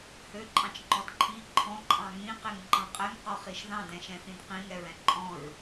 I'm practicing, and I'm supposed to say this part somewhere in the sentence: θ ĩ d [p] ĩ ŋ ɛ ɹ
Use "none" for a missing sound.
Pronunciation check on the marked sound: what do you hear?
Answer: q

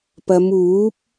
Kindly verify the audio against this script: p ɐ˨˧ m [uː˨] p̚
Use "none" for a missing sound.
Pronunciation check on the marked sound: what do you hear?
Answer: uː˨˥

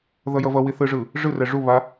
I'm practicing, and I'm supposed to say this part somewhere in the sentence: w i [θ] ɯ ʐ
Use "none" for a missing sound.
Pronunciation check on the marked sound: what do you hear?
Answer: θ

